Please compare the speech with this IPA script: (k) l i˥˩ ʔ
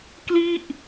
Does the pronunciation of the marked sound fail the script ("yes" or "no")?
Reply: no